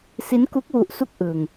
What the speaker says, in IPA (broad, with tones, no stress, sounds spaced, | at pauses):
s i˦˥ n k u˦˥ k̚ w u˦˥ ʔ s u˥˩ k̚ ʔ ɯ˧ ŋ